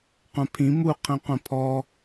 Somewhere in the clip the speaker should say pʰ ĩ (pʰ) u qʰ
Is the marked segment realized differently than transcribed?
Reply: yes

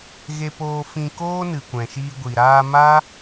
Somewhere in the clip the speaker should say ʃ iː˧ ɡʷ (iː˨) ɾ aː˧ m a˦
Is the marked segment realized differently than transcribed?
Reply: yes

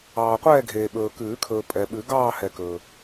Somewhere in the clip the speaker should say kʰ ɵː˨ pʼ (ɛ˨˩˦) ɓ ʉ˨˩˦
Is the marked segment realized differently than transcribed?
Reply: yes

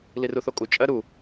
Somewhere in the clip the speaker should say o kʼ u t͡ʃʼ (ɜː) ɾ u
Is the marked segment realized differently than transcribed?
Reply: yes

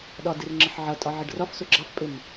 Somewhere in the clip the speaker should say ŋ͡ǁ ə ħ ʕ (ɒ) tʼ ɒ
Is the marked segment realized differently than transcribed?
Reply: yes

